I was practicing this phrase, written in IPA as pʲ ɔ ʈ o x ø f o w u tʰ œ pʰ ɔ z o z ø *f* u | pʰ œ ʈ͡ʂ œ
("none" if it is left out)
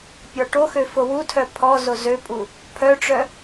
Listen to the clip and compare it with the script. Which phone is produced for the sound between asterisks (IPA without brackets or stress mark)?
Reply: pʼ